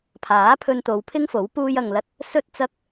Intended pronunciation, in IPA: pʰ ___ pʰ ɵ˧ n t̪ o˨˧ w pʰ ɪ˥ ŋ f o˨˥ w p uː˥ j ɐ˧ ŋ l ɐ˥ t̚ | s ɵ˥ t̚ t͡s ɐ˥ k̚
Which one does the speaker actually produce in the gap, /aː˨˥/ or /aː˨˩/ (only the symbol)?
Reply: aː˨˥